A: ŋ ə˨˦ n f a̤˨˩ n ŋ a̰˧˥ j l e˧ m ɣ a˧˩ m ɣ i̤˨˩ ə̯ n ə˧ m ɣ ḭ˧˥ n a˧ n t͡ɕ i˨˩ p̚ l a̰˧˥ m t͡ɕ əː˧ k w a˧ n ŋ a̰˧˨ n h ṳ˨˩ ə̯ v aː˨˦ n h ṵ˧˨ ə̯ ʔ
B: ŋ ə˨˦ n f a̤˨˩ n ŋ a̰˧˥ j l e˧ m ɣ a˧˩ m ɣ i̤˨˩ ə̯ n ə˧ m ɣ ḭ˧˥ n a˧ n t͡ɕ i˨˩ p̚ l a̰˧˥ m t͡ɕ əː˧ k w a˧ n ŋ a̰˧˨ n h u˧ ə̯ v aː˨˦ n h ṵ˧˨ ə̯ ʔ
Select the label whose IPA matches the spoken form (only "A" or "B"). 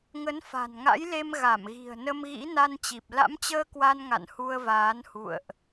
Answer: B